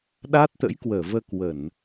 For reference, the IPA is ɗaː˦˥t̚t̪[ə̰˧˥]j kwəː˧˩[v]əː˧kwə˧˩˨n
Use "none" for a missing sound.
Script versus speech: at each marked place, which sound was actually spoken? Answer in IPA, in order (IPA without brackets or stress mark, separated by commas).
ə̰˧˥, v